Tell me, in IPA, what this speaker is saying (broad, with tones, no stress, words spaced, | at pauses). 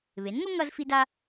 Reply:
βe˩˥nŋo˥ ŋʌ˥zfi˥da˥